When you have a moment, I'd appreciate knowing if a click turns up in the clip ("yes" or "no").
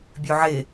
no